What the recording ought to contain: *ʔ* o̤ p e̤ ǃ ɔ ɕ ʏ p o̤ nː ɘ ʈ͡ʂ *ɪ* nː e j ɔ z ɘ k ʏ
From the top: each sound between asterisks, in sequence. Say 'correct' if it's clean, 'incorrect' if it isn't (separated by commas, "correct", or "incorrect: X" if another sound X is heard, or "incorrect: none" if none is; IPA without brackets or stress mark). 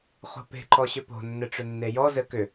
incorrect: χ, incorrect: ʏ